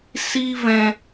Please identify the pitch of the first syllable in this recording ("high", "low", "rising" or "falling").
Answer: high